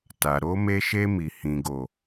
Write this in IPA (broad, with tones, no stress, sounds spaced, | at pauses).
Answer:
t a˨ ɾ o˧ m e˧ ʃ e˧ m i˨ h ĩ˨ ɡ o˨